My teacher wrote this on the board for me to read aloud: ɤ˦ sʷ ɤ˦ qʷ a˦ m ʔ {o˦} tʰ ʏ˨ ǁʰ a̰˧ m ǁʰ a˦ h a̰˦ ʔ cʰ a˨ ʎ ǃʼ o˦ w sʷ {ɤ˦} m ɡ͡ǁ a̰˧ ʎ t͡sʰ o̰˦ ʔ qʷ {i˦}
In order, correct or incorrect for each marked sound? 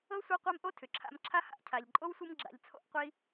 correct, correct, correct

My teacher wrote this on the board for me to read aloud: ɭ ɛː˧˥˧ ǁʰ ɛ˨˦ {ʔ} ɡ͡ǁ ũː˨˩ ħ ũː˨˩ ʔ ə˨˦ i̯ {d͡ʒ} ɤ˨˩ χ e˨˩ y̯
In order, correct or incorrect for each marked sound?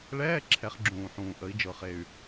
incorrect, correct

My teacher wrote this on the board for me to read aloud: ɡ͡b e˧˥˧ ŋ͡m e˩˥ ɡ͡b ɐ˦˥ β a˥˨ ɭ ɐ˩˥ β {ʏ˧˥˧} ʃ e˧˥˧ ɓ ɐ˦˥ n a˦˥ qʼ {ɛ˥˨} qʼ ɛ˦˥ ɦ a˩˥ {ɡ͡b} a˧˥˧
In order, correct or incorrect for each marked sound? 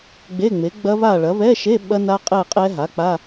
incorrect, correct, incorrect

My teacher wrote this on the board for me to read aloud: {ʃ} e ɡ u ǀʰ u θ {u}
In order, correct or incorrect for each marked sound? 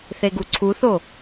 incorrect, incorrect

